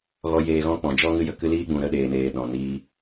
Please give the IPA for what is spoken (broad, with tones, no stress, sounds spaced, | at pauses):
ɣ ɔ˧ j eː˧ ɣ ɔ̃˦ k͡p ɔ̃˨ d͡ʒ ɔ˦ ŋ ɨ˦ j ə˧ k ɨ˦ l iː˦ ɡ͡b ũ˨ ɾ ə˦˨ ɗ eː˨ n eː˨ ɗ ɔ̃˨ n iː˧